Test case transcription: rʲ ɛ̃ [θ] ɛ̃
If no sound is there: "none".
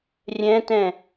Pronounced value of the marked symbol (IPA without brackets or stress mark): t